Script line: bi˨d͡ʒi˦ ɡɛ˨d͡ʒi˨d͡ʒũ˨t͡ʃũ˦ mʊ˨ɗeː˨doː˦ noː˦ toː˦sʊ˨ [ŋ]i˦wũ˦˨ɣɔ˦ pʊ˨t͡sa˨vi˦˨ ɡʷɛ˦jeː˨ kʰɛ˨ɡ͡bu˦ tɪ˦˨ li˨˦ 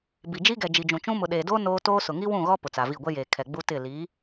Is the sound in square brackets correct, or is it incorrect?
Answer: correct